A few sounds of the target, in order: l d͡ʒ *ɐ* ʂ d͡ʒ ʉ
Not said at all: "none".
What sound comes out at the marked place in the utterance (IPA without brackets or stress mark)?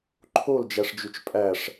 æ